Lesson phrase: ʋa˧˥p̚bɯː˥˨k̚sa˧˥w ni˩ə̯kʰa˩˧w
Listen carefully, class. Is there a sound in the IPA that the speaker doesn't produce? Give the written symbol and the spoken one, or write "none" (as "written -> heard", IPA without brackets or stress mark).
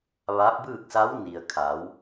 none